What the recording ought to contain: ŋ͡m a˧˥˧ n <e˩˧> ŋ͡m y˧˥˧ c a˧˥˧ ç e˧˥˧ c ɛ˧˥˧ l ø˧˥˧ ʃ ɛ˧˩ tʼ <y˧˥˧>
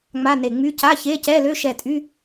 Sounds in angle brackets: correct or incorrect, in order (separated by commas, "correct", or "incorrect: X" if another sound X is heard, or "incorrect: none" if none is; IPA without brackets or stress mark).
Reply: incorrect: e˧˩, correct